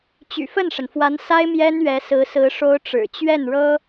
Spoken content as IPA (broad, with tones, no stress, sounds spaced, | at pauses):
t͡ɕ y̰˨˩ f ə˥˩ n ʂ ə˩ n f w a˧˥ n s a˥ ɪ̯ m j ɛ˥ n ɥ ɛ˧˥ s ɹ̩˧˥ s ɹ̩˧˥ ʂ o˧˥ ʊ̯ ʈ͡ʂ ɻ̩˨˩ t͡ɕ ɥ ɛ˥˩ n ɻ ɤ˥